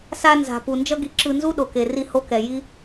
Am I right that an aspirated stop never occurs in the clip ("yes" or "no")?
yes